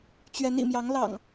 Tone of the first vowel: rising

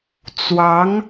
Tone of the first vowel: rising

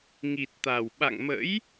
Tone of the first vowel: low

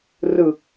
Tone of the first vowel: low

